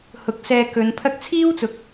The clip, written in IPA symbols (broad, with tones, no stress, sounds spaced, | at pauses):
h ʊ˨˥ k̚ s ɛː˧ k ɵ˨˧ n pʰ ɐ˥ k̚ t͡sʰ iː˥ w t͡s ʊ˨ k̚